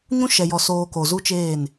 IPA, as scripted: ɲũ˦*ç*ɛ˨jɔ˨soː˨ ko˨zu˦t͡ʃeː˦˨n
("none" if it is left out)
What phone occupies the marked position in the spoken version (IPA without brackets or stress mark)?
ʃ